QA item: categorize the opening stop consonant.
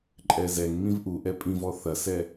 click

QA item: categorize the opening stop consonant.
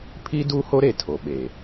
aspirated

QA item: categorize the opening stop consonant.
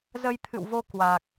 aspirated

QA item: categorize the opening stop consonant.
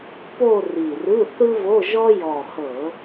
plain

